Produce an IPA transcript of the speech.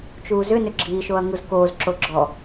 t͡ʃ uː z ʏ n ʏ ɡ͡ǁ iː ʃ o ɐ̯ ŋ u z k oː z ǁ o ɡ͡ǁ ɔ

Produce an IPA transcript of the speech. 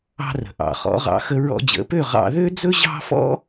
ɑ̤˧ r ə̤˩ ʔ ɑ̰˩ χ ɔ̰˩˥ ʁ ɑ̰˩˥ x ə˧ ɹ ɔ̰˧ d͡ʑ ə̰˩˥ p ø˥˩ ʁ ɑ̰˧ ð ø˥ d͡z ɵ˥ ʑ ɑ̤˥ f ɔ̰˥

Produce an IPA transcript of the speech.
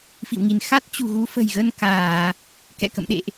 f ḭ˧˨ w ŋ i˧˩ n x a˦˥ t̚ t͡ɕ ṳ˨˩ ɣ u˨˦ f ə̤˨˩ j ɣ ə˧ n k aː˧˩˨ | k ɛ̰˧˨ k ə̰˧˨ m ɗ ḛ˧˨ ʔ

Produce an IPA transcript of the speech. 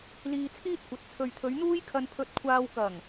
l iː˧ t͡sʰ iː˥ t̚ kʷ ɐ˨˥ t̚ t͡sʰ ɵ˨ ɥ t̪ʰ ɵ˨˧ ɥ n̪ uː˥ j kʰ ɐ˧ n pʰ ɵ˧ t̚ kʷʰ aː˧ w k ɐ˨˩ ŋ

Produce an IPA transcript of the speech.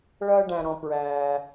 ɭ ɐː˧ ɖ æ̃˩ ɾ ɔ̃˩ p ɹ æː˩

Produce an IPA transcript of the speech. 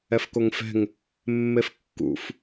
ɛ f k o ŋ f ɛ̤ ŋ | mː e f kː ṵ f

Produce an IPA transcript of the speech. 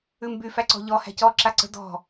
ʉ m b y f æ ǀ ɔ̤ ʎ ɔ h æ̤ c ɔ ǁ a ǀ ə̤ d ɔ̤

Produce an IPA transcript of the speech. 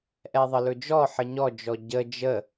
ʔ ɛ ðˤ ə l ɵ d͡ʒ ɔ ħ ə ɲ ɔ d͡ʒ ɔ ɟ ə d͡ʒ ə

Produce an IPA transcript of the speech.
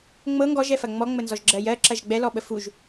ŋ͡m ɤ ŋ ɡ ɔ ʒ ɛ f ɐ ŋ͡m ɔ ŋ͡m ə n z ɔ ʒ ɡ͡ǁ ɜ j ɜ ǁ ɐ ʒ ɡ͡b ɛ l ɔ ɓ ə f u ʒ

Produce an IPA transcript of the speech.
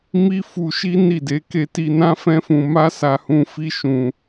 m i˦ f u˧ ʃ i˦ n i˦˨ d e˨˦ k e˧ t i˧ n ã˦ f ɛ̃˦ f ũ˧ m a˦ s a˧ h ũ˧ f i˦ ʃ ũ˧

